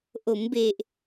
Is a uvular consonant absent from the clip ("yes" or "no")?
yes